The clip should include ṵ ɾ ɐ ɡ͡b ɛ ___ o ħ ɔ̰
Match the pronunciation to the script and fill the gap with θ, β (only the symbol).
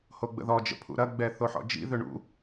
θ